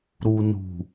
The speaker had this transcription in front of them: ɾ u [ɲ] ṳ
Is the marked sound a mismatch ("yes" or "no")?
yes